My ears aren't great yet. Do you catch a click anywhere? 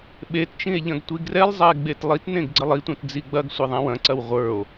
yes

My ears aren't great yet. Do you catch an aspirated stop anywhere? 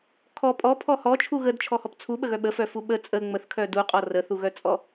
yes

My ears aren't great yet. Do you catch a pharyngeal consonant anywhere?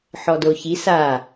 yes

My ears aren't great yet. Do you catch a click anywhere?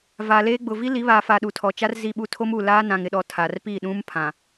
no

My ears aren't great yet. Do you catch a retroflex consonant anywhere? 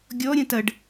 yes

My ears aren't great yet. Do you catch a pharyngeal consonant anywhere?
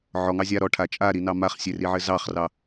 yes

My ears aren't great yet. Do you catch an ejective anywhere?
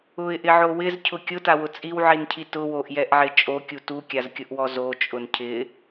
yes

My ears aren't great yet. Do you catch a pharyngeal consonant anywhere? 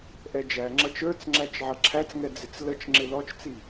yes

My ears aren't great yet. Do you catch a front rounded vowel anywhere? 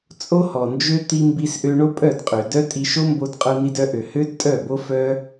yes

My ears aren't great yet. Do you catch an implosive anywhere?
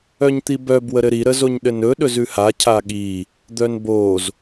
yes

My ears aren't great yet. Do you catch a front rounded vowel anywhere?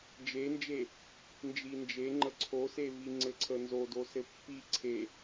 no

